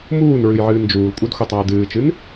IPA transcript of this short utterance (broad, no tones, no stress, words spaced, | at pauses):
muːn ɹɨjʕɨːnd͡ʒuːlkʷʼɨd xʷətˤaə̯dɨːt͡ʃɨn